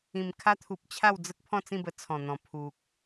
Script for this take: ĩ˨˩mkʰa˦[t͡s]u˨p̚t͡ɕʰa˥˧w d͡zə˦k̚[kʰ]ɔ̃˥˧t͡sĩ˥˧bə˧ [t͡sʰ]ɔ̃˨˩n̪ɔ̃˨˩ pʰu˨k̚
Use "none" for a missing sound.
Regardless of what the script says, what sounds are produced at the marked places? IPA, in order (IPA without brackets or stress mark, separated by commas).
t̪ʰ, pʰ, t͡sʰ